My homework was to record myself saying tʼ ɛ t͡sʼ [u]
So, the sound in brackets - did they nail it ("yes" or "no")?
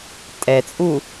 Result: yes